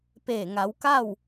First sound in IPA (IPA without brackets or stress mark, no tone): p